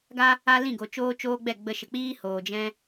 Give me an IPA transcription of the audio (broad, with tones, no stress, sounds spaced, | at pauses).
ɡ a˦ | a˦ l ĩ˦˨ ɡ o˨ t͡ʃ oː˦ t͡ʃ oː˦ ɡ͡b ɛ˦˨ ɡ͡b ə˧ ʃ ə˨ k͡p iː˦ h oː˨ d͡ʒ ɛ̃˦